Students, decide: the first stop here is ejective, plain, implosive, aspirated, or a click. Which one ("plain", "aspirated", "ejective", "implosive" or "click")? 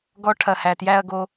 plain